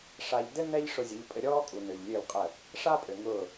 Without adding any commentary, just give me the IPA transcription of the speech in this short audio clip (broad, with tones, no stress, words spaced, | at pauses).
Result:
ʂa˧ʎ dɘ˦ nɛ˦ʎ ʂʊ˧zʲɘ˨˦ʎpʼɘ˧ ɾʲɔː˦kʼu˨nø˨ʎ lʲø˦˨lqʼə˦˨ | ʂaː˦pʼø˨ ŋʊː˦˨